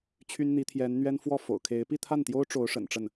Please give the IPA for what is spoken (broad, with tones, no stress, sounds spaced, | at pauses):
t͡ɕʰ y˥ n n̪ i˧˥ t̪ʰ j ɛ˧˥ n n̪ ɥ ɛ˥ n f w ɔ˥˩ f o̰˨˩ ʊ̯ kʰ e˧˥ ɪ̯ p i˥˧ t̪ʰ a˥˩ n t̪ j o˥ ʊ̯ ʈ͡ʂ o˧˥ ʊ̯ ʂ ə̰˨˩ n ʈ͡ʂ ə˥˩ n